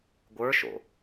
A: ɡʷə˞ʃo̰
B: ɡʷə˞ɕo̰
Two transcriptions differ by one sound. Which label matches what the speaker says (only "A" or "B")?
A